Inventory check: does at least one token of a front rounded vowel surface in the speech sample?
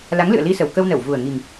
no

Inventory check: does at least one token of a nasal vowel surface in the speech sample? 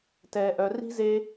no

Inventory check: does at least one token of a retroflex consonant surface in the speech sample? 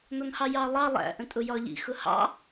no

